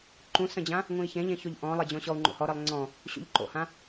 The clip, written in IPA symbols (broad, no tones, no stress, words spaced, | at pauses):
ǃũsə̃d͡ʑã | ŋũi̯çẽʎẽçoʎ ʔɔ̃lˠed͡ʑɔ̃ ɕɔu̯ŋ͡ǃo̰hɔɾelˠ ŋ͡ǀɔ̃ | ɕṵʎǃo̰hã